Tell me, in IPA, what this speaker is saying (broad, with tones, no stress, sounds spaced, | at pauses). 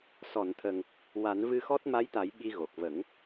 s ɔ˨˩˨ n t̪ʰ ə˨˩ ŋ | w a˨˩˦ n v ɨ˧ x ɔ˦˥ t̚ m a˧˥ j t̪ a˨˩˦ j ɓ i˧ ɣ o˨˩ k̚ v ə˨˩˦ ŋ